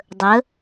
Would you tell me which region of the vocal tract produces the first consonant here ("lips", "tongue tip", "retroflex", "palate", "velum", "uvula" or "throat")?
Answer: tongue tip